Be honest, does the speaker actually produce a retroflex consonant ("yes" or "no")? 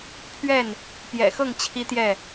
no